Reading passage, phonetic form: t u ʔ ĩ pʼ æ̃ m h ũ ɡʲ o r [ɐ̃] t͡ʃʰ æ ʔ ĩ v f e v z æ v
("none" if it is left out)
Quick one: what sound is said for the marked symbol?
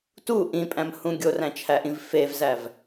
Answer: æ̃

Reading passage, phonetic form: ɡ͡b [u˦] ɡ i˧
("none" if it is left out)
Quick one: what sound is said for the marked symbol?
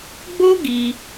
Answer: o˦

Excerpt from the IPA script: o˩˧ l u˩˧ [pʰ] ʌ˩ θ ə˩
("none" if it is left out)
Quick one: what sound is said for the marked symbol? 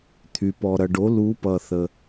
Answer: p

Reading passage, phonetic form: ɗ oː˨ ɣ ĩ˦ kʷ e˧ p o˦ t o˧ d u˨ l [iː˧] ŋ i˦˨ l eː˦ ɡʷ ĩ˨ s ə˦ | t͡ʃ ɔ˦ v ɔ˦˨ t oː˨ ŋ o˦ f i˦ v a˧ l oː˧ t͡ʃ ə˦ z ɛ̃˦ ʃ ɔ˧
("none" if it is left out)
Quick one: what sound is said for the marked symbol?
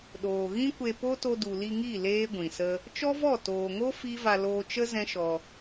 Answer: i˧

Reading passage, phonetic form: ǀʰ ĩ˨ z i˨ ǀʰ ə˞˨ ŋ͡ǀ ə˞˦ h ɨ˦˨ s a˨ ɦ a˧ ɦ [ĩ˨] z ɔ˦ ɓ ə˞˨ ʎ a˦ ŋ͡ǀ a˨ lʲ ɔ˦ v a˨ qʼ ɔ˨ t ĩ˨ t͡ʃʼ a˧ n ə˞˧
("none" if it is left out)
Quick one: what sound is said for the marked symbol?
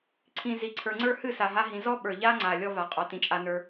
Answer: ĩ˨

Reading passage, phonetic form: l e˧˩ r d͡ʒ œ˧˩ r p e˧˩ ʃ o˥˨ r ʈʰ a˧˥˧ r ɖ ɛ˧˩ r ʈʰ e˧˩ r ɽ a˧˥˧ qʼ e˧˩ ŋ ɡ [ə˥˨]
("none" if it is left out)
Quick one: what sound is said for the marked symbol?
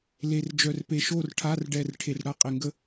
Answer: ə˥˨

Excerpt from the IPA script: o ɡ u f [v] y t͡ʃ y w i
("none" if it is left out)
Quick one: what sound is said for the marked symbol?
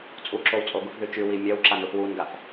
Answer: ð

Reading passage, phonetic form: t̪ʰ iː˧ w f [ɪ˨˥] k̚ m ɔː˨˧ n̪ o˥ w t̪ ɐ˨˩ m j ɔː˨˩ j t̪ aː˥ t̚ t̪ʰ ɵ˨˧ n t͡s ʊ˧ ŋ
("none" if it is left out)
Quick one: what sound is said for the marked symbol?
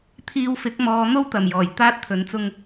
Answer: ɪ˨˥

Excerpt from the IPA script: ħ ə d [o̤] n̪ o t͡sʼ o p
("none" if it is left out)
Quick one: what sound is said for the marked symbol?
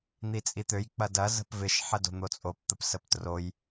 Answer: o̤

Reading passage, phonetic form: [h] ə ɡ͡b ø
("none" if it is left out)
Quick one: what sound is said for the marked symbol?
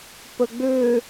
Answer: p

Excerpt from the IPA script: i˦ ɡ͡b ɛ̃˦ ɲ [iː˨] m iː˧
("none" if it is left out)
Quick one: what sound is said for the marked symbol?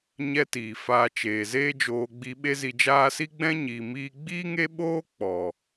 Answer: iː˨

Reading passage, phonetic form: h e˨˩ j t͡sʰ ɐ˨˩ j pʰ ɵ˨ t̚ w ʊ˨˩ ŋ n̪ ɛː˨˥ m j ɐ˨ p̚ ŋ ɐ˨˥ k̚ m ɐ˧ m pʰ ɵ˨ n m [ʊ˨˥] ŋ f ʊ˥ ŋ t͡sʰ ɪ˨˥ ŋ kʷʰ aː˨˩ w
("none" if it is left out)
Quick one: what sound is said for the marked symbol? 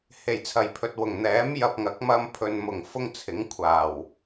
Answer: ʊ˨˩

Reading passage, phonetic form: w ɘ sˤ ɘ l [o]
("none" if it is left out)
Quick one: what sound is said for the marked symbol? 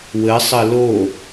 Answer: o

